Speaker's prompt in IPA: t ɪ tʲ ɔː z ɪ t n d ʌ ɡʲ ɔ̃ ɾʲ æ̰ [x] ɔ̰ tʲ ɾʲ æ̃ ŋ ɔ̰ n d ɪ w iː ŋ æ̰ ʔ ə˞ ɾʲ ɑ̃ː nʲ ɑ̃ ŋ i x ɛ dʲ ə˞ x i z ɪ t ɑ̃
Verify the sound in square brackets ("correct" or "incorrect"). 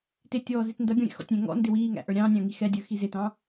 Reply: correct